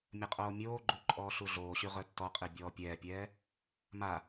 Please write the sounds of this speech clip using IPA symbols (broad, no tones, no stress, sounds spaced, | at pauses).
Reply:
mʲ ə qʼ oː mʲ oː ɡ͡ǃ u ǃʼ ɔː ɬ u ɮ oː ɕ y ʁ œ tː ɔ qʼ i bʲ ɔː pʲ ɛː pʲ ɛː | m a